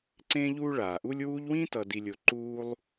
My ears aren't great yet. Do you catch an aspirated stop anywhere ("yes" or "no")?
no